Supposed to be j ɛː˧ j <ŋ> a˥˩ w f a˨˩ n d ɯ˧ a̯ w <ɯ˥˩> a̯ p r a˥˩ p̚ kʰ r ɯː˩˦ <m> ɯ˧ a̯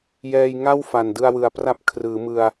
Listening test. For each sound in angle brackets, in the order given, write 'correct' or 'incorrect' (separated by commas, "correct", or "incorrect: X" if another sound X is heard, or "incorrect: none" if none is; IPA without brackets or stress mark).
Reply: correct, incorrect: ɯ˨˩, correct